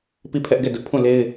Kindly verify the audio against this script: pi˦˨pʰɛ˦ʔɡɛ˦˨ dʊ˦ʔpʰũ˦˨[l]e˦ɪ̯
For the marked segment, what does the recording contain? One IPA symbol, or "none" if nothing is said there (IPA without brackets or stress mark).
l